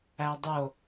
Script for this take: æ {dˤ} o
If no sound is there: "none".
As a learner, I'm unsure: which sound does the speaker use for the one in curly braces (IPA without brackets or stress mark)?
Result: dˤ